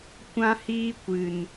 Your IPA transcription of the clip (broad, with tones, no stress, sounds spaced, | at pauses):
kʷ ã˦ h iː˦ kʷ ɨ˨ n